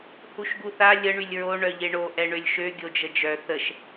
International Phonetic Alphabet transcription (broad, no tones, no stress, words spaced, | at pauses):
huʃɡuθa lʲə ɳylʲɹo ɳœʎeɳo ʔɛɳølʲʃø ɡʲod͡ʒəd͡ʒœ θəʃ